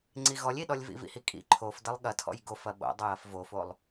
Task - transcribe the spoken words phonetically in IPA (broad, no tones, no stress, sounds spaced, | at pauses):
ŋ͡ǀ i ɣ ɔ lʲ i ɗ ɔ lʲ v ḭ v ḭ h i kʼ ḭ ǃʰ o f d ɐ lˠ ɠ ɐ tʰ ɔ̰ j ɡ o f ɐ ɓ o̰ dˤ ɐ j ɐ f v o f o lˠ